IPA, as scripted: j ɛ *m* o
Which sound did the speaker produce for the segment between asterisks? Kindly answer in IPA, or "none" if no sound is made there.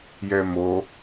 m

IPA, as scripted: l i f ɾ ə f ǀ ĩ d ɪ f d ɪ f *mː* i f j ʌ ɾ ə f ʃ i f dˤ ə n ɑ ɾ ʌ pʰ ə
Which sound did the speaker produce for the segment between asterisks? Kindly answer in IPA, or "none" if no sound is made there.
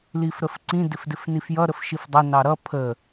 n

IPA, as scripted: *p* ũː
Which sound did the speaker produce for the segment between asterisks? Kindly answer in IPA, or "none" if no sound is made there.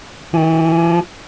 p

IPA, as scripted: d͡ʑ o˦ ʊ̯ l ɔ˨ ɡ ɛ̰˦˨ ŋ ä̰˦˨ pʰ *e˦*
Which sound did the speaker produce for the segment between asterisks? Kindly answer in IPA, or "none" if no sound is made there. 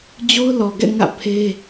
e˦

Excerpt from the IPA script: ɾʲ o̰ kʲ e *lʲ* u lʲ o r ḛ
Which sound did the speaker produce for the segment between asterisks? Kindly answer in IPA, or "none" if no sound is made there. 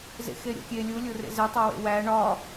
lʲ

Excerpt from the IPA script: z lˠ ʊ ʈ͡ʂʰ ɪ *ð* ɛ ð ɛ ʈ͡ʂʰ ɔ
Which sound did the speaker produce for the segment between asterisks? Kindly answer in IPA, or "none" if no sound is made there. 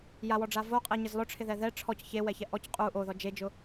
ð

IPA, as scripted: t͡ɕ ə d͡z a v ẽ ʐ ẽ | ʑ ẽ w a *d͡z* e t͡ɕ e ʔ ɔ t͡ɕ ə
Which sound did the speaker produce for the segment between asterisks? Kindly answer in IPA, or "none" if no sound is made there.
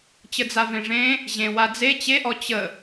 d͡z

